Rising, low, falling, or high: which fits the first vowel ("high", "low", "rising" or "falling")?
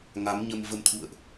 rising